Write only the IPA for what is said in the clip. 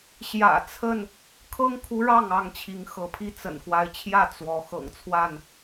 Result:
ɕ j ä̰˨˩ t͡sʰ ə˥˨ n | kʰ ɤ˦ ŋ kʰ u˨˦ ɻ ɑ˥˨ ŋ ɑ˥˨ ŋ t͡ɕʰ i˨˦ ŋ x ɤ˨˦ pʰ i˥˨ t͡s ə̰˨˩ n x w a˨˦ ɪ̯ t͡ɕʰ j ä˥˨ t͡s w ɔ˨˦ x ɤ̰˨˩ ŋ t͡sʰ w a˥˨ n

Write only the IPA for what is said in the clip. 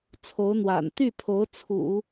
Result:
t͡sʰ o˧˥ ʊ̯ n̪ w a̰˨˩ n t̪ y˥˩ pʰ o˧˥ ʊ̯ t͡sʰ ṵ˨˩˦

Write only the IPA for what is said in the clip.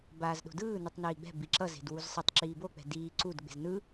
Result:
b aː z ɗ o̤ d ɯː n ɯ tˤ n iː ɡ͡b ɛ̤ b i ǁ ʌ z e̤ d w u z sˤ ɯ tˤ ǁ iː b o k͡p ɛ̤ d iː ǀ u d ɡ͡b e̤ z n ɯ

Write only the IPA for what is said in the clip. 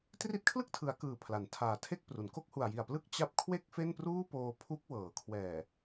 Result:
t r i˦˥ t̚ kʰ l ɯ˥˩ k̚ tʰ ɯ˩˦ a̯ k ɯː˨˩ pʰ l a˩˦ n tʰ aː˨˩ tʰ e˥˩ k̚ p r u˩˦ n k o˥˩ k̚ h u˨˩ a̯ j i˨˩ a̯ p l ɯ˥˩ k̚ t͡ɕ a˦˥ p̚ kʰ w e˥˩ k̚ f e˥˩ n p r uː˥˩ p oː˧ pʰ u˦˥ k̚ w ɤː˩˦ kʰ w ɛː˨˩

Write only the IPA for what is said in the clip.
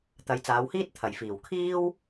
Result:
t̪ ɐ˨˧ j t͡s aː˨˧ w h iː˥ t̚ t̪ʰ ɐ˨˩ j f iː˨˩ w kʰ iː˥ w

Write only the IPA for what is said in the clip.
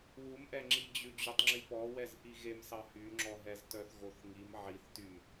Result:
w u m ʔ ɛ ŋ͡ǁ i d͡ʑ ʉ d͡ʑ y tˤ ŋ͡ǁ i p ɔ w ɛ z ʔ i ɣ e m s ɑ h y ŋ͡ǁ ɔ ɦ ɛ z t œ θ ɣ o θ ŋ i m ʕ i θ t y m

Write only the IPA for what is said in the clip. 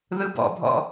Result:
ð ɯ b ɔ̰ bʱ ɔ̰

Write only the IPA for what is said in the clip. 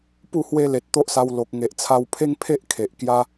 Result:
p u˥˧ h w e˦ l e˨ t̚ t̪ o˦ ʔ s a˧ w l o˨ k̚ ŋ e˨ ʔ t͡sʰ a˧ w pʰ e˦ ŋ pʰ e˦ ʔ kʰ e˨ ʔ k j a˧

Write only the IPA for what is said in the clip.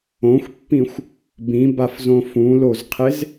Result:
õ xʷ pː ĩ xʷ | b ĩ b a f z õ f ũ l o z qʰ e z

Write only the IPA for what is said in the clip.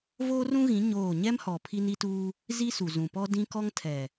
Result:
v oː˦ r ũ˦ ɣ ĩ˨˦ ɲ oː˦˨ ɲ ɛ˦ m h ɔ˨ pʰ i˦ n i˦ t uː˦ | z i˦ s u˨ z ũ˨ p ɔ˦ d ĩ˦ k ɔ˦ ŋ tʰ ɛ˨

